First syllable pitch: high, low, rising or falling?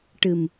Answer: low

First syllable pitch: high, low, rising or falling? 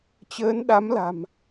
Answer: rising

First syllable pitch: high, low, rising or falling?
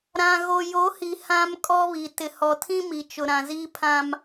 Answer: low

